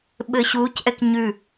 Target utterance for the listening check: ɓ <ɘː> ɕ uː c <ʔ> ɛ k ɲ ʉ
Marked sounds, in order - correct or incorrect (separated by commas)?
correct, correct